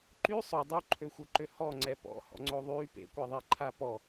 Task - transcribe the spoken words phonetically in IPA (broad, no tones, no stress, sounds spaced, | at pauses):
ǃ y sˤ o dˤ u ǃʰ ø xʷ œ ǃ ø h ɔ ŋ͡ǀ ɛ p ɔ̰ h ɔ̰ ŋ͡ǀ o ðˤ y p ḛ kʷ ɛ ðˤ i ǃʰ a p ɔ